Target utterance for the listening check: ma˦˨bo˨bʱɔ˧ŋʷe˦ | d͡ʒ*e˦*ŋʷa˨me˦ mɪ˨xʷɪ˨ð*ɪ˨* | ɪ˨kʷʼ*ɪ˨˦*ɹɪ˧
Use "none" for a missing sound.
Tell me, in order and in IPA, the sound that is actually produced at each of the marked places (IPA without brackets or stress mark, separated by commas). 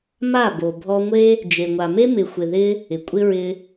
e˨, ɪ˧, ɪ˦